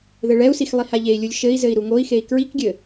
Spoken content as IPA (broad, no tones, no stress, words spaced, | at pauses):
ðɘɭɛu̯six lˠihaʎei̯lʲulʲ ʃɘi̯zɘi̯ ɾuŋoi̯xei̯ kɹikɡʲɘ